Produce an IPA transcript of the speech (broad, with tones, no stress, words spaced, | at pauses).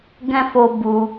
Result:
ɡɛ̃˦fo˧ bu˧